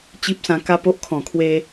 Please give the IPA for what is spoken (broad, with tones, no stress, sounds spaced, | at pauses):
t͡ɕ i˦ p̚ s ã˧ k a˦ p o˦ ʔ kʰ ɔ̃˨˩ kʰ w e˧